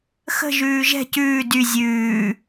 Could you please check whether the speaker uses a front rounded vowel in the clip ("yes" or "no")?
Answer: yes